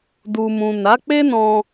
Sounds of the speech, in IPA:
d u˨ m ũ˨ n a˨˦ k͡p e˦ n ɔ̃˧

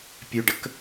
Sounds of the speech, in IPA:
pʲ ø ɖ ə k

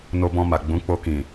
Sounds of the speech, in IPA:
n o˧ b ɔ̃˧ m a˨ ɡ͡b ũ˨˦ k͡p o˧ k ĩ˨

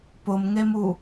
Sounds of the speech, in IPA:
p ʊ m ŋ e m u

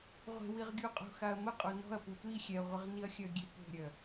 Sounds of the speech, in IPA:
ʁʷ e̤ w i ʁ ɡʲ u qʼ o̤ x a ɐ̯ m ə qʼ o n ɔ̤ ɐ̯ p u tʷ i xʲ ɛ ʁʷ ə ʁ n i ɐ̯ xʲ œ ɡʲ e p o̤ ɾʲ œ

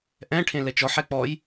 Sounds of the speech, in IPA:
ʔ ɛ̃ ʈʰ ẽ l ɛ t͡ʃ ɔ ħ ɛ k͡p ɔ j

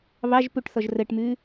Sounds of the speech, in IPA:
β ɑ ʒ p u ʈ θ ɔ ʒ r ə ʈ m ʉ

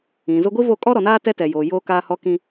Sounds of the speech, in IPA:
ĩ˨ z ʊ˦ ɡʷ i˦ v o˦˨ kʼ ɔ˦ ɾ ɔ˨ n aː˦ t ɛ˦ t ɛ˨ j oː˨ j oː˦ k aː˦ h ɔ˦ k ĩ˦

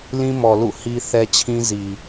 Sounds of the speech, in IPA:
l ĩ˦ m ɔ˨ l ṵ˦˨ h i˦ θ ɛ˦ t͡ɕʰ ĩ˦ z i˨

